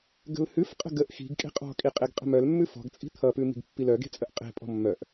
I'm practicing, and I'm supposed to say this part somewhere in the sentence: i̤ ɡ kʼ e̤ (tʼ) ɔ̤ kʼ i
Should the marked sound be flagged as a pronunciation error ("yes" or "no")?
yes